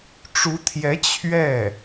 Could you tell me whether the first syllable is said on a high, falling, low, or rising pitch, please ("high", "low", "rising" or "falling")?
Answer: rising